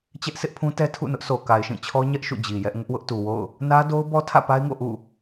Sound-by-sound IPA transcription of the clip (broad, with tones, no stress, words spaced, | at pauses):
t͡ɕɛ˦ʔsɪ˦ʔpʰũ˦tɛ˦ tʰṵ˦˨nʊ˦ʔ sʰo˨ka˨ɪ̯ʃĩ˦˨t͡ɕʰɔ˦ ɲɛ˦ʔ ʃṵ˦˨d͡ʑi˨jɛ˦ʔ ŋʊ˦ʔwʊ˦ʔtu˨wo̰˦˨ʊ̯ | nä˦ do˦ʊ̯bɔ˦tʰä̰˦˨ pa˦ɪ̯ŋo̰˦˨ ʔṵ˦˨